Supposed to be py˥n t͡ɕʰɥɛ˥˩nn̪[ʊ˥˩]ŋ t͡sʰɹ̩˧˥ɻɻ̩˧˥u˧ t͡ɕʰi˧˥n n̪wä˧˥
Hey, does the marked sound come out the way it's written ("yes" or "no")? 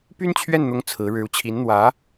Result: no